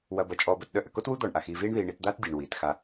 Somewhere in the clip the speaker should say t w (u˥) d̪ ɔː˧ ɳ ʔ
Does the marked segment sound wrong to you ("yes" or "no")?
no